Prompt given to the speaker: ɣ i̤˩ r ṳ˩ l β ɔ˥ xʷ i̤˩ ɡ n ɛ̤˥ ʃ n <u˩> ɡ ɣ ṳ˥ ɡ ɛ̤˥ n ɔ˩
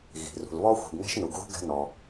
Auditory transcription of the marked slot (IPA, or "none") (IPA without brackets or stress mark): u˩